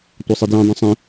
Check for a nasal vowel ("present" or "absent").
present